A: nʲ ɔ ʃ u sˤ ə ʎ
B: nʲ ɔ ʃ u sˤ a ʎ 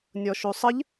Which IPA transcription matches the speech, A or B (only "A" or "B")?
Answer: A